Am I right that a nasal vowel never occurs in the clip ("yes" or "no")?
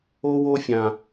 no